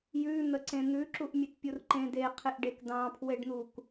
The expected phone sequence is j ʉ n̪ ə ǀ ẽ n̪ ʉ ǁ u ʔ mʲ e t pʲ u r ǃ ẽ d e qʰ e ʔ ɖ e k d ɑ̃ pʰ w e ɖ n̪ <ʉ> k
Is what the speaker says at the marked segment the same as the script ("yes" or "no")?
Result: no